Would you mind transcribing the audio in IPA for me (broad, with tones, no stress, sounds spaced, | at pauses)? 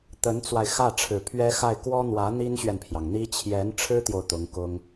t̪ ə˧˥ n t͡s w a˧ ɪ̯ x ä˥˩ ʈ͡ʂʰ ɻ̩˨˩ pʰ ɥ ɛ˥ x a˥˩ ɪ̯ k w ɔ˥ n̪ w ä˧˥ n̪ i˥ n ɕ ɥ ɛ˨ n pʰ j ɑ˩ ŋ n̪ i˥ t͡ɕʰ j ɛ˧˥ n ʈ͡ʂʰ ɻ̩˥ t̪ j o˨ ʊ̯ t̪ ʊ˧˥ ŋ k ʊ˥ ŋ